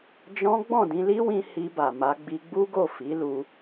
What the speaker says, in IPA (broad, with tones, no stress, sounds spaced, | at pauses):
d͡ʒ ɔ̃˦ ɡ͡b ɔ̃˦˨ d ĩ˧ l i˦ w ĩ˧ h i˧ b a˨ m a˧ ɡ͡b i˧ ɡ͡b u˦ ɡ o˦˨ f i˨˦ l u˧